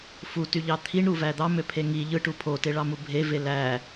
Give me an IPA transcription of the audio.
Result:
f u t y ʎ ɑ t̪ʰ i ɳ ɾ u v æ d̪ ɑ m ø pʰ e ŋ i ʎ ɯ ʈ u pʰ o t e ɭ ɑ m u bʱ e v e l æ

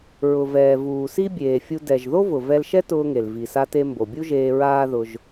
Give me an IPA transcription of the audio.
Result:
ɹ ʊ˩ v ɛː˩ v uː˩ s i˥ bʲ eː˩ fʲ u˧ d ɛ˩ ʒ ð o˥ v ʊ˩ v ɛ˧ l ʃ ɛ˥ t ʊː˧ ŋ e˩ l v i˩ s a˧ t e˧ m b o˩ bʲ u˥ ʒ eː˧ ɹ aː˥ ð ʊ˧ ʒ

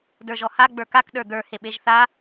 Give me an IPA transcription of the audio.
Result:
d ə˞ ʒ ɔ h a ɡ͡b ə˞ k a k ɗ ə˞ d̪ ə˞ h e ɓ e ʒ θ a

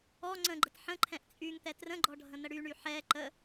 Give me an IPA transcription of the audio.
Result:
ɔ ŋ͡ǀ ə̃ ɡ͡ǃ ə t ħ ə̃ ǃʰ ɛ̃ ʔ t͡sʼ y ŋ t̪ ɛ t r ə̃ ɡ͡ǃ ɔ ɖʱ ə̃ n̪ ə ɽ y ɳ y ħ ɛ ǃ ə

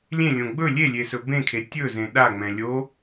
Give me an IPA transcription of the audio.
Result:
lʲ ẽ lʲ õ ɡ͡b ɵ lʲ e lʲ e s ɵ b ẽ kʰ e tʲ ɵ z ẽ ɗ a ŋ͡m ɛ̃ lʲ o

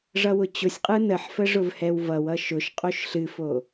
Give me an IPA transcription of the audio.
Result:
ʐ ʌ w ʊ t͡ɕ ʊ sʲ qʼ ɯ n ə ħ f ə ʐ ʊ v h ɛ w v ʌ w ʌ ʃ ʊ ʃ qʼ o ʃ ɬ ɨ f o

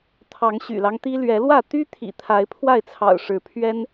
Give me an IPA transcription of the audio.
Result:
t̪ʰ ɑ˨˦ ŋ ɕ y̰˨˩ l ɑ˦ ŋ t̪ i˦ l ɥ ɛ˨˦ l w ä˥˨ t̪ y˦ t̪ʰ ḭ˨˩ t̪ʰ a˨˦ ɪ̯ pʰ w a˥˨ ɪ̯ t͡sʰ ɑ̰˨˩ ʊ̯ ʂ ɻ̩˨˦ pʰ ɥ ɛ˦ n

